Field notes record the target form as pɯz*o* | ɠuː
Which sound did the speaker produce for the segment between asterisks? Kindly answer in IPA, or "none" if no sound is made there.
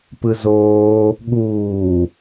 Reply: oː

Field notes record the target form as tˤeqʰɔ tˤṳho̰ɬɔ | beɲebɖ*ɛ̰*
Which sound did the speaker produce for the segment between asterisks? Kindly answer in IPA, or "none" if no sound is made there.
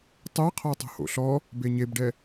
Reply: ɛ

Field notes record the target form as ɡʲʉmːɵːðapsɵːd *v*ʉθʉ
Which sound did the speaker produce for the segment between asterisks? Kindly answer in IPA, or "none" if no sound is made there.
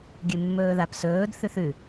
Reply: θ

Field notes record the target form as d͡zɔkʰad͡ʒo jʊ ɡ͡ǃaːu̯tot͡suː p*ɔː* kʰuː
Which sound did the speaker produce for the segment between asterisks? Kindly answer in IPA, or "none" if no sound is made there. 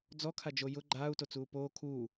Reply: oː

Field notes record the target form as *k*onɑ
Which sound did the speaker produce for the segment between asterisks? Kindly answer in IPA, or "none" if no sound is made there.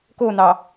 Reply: k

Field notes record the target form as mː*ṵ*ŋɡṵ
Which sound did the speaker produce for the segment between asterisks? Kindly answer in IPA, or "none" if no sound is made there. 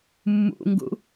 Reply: ṵ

